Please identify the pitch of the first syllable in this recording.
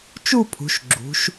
falling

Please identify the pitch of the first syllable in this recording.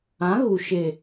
rising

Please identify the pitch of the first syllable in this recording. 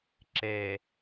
low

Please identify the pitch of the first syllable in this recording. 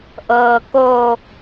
low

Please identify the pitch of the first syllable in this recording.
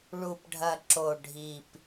low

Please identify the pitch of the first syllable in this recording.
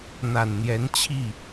low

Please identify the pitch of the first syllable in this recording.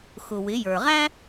low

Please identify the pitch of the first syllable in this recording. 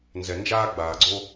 low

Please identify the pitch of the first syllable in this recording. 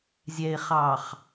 low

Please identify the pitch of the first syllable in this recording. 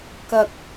low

